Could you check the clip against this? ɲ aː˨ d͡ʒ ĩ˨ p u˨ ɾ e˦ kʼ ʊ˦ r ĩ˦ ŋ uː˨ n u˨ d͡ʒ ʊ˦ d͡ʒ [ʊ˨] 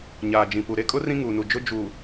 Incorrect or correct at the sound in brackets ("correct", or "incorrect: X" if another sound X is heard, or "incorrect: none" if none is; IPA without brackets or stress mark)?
incorrect: u˨